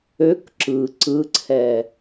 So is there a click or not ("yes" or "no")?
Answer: yes